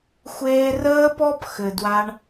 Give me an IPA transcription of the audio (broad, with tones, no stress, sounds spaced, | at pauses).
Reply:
xʷ eː˧ r əː˦ p ɔ˦ p x ɘ˨ d w a˧ ɳ